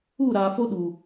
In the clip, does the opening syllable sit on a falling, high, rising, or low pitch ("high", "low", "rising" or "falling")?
falling